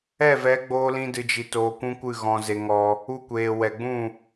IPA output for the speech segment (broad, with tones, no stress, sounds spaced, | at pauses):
ɛ˦˨ v ɛ˨˦ ɡ͡b oː˧ l ĩ˦ d ɨ˧ d͡ʒ i˧ t oː˧ kʷ ũ˦ kʷ ɨ˦˨ ɣ ɔ̃˧ z e˧ ŋ ɔ˧ | u˧ kʷ eː˨ w ɛ˨ ɡ͡b ũ˦˨